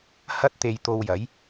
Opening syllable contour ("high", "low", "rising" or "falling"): high